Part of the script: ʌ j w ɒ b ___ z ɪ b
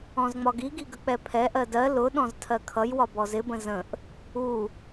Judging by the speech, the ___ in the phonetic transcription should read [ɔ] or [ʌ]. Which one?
ɔ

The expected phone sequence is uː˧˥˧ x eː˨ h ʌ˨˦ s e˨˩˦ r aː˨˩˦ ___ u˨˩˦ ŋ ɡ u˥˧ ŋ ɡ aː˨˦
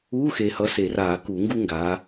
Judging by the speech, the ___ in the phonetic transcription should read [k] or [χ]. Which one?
k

